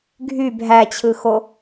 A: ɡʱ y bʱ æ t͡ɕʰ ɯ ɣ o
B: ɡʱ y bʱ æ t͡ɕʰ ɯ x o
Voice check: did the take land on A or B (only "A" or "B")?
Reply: B